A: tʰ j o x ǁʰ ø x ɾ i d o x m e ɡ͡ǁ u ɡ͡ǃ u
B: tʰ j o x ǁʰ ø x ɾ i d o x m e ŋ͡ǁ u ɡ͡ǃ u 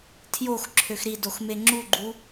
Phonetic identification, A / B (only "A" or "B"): B